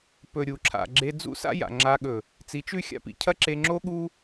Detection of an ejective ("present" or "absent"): absent